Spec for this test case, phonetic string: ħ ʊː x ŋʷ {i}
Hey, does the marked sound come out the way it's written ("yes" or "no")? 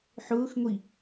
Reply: yes